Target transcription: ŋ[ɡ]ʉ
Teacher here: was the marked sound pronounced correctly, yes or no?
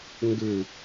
yes